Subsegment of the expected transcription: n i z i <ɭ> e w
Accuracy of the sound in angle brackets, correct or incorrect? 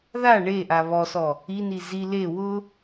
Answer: incorrect